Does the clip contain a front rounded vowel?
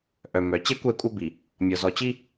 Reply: yes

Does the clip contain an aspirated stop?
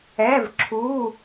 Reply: yes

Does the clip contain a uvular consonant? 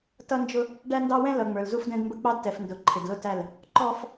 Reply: no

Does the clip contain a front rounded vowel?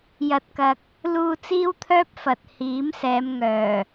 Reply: yes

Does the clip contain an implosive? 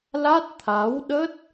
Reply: yes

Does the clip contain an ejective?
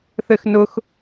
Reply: no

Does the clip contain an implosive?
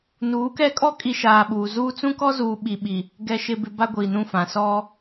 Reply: yes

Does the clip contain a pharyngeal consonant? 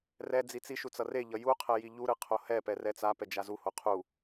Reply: no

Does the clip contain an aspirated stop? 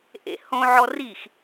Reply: no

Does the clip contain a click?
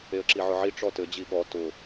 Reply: yes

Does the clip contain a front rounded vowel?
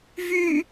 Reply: yes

